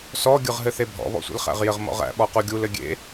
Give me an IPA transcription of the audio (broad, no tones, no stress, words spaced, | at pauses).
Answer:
sɔ ɡʲɯʁɦɘθebʱɔ̰ βɔ̰sʷḛlχæ̰ʁjɘʁ mɔ̰ʁæ̰ ɓɔquɡʲul ɘɡʲḛ